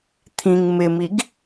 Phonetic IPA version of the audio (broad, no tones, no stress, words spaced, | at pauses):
t̪ʰĩŋ mɪmiɡ